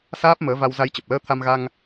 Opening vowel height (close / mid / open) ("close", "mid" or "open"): open